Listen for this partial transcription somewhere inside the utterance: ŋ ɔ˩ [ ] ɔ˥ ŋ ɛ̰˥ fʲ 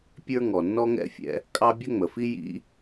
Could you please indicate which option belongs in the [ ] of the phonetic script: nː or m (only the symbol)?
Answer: nː